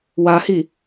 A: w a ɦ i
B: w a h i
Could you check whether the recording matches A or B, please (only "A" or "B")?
B